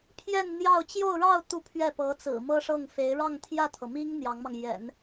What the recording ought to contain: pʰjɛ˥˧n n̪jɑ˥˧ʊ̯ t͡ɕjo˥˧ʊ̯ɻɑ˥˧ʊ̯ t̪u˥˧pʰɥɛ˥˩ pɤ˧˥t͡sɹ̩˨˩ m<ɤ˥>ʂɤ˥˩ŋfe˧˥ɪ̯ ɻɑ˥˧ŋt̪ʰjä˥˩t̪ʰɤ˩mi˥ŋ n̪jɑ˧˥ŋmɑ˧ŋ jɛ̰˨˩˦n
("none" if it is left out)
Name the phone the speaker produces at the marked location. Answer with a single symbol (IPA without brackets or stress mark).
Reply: ɤ˥